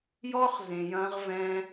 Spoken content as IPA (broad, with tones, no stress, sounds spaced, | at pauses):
j ɔ˦ χ z ẽ˨ j ɐ̃˧ ʁ v ɛ̃˧